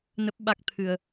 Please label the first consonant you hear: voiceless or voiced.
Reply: voiced